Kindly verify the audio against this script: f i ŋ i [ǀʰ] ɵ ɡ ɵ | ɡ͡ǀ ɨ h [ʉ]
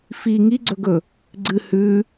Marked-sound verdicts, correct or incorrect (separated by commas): incorrect, correct